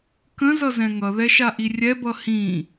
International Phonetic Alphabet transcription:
k ə̃ z ʌ z ɛ̃ ŋ ʌ ð ɛ ʃ a ʔ i rʲ ɛ b ʌ h ĩ

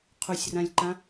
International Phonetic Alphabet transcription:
qʰ u sʲ r ã lʲ ǃ ã

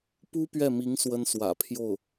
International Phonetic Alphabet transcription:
p u˥ p ɥ ɛ˥˩ m i˧˥ ŋ s w ə˥ n s w ä̰˨˩ pʰ j o˥˩ ʊ̯

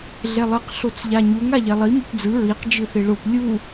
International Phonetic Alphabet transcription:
ɮ ɛ lˠ ɯ q ɬ o t͡s ʎ a ɲ u ŋ a ʎ ɛ lˠ i m o p d͡z ɯ ɹ i q d͡ʒ ɯ θ e ɭ o p lʲ u

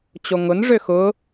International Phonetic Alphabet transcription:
t͡ɕ o ŋ ʊ n ʐ ø x ʊ

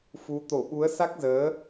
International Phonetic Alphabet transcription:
f u˨˦ t̪ o˧˩ ɓ u˨˦ ə̯ s a˦˥ k̚ z əː˨˦

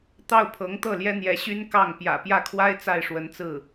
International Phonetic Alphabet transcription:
t̪ ɑ˥˩ ʊ̯ pʰ ɤ˧˥ ŋ t̪ ɤ˥˩ l j ɛ˥ n̪ j ɛ˧˥ ɕ y˥ n k ɑ˥˩ ŋ p j ä̰˨˩ p j ä˥˩ kʰ w a˥ ɪ̯ t͡s a˥˩ ɪ̯ ʂ w ə˧˥ n t͡s ɹ̩˥˩

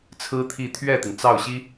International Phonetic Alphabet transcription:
t͡sʰ ɹ̩˥ t̪ʰ i˥˧ t̪ʰ ɥ ɛ˥˩ t̪ i˩ ŋ t͡s ɑ˥˩ ʊ̯ ɕ i˥

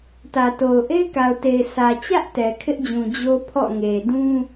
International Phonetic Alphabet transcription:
t ä˨ t o˨ ʊ̯ ʔ e˦ ɪ̯ k a˨ ʊ̯ t e˨ ɪ̯ sʰ ä˨ t͡ɕ ä˦ ʔ t ɛ˨ kʰ ɪ˦ ʔ d͡ʑ ũ˨ d͡ʑ o˦ pʰ ɔ̰˦˨ ŋ e˨ d ũ˦

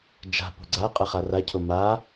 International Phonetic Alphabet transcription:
d͡ʒ a̤ p o̤ ɡ͡ǀ a qʼ ɜ χ a r a cʰ o m a

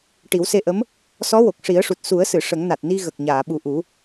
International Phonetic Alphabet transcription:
ʈ i˨˩˦ w s e˧ ʔ ə˧˥ m | s ɔ˧˥ w o˨˩ k̚ ʂ i˨˩˦ ə̯ ʂ u˨˩ t̚ s u˨˩˦ ə̯ s ɨ˨˩˨ ʂ ə˨˩˦ ŋ n a˨˩ t̚ n i˧ ɣ ə˨˩ k̚ ɲ aː˨˩˨ ɓ u˨˩ ʔ u˨˩˦

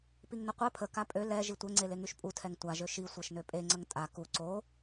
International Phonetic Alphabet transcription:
p i ŋ n ə qʷ ɛ pʰ ə k a pʼ ø l ɛ ʒ i tʷ ɛ ŋ͡ǀ e l e ŋ y ʃ pʼ u tʰ ɛ ŋ tʷ a ʒ ø ʃ i sʷ ɛ ʃ n ø pʼ e ŋ͡ǀ ə ŋ tʼ a k u ǀ o

